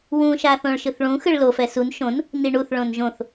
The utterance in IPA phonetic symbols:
wũʃaθõɭ ʃɯθɭũ xɯɭlofɛ sun ʃõn | niɳuθɭõn ʒõθ

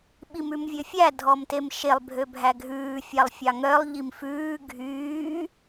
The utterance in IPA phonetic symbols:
ɓimʉmvʲøfʲæ dʱɔmtemʃelˠ bʱøbʱæɡʱʉː fʲɑlˠfʲɑŋœlˠ ʎimfʉː ɡʱyː

